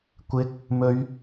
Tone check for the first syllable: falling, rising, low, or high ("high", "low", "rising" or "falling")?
rising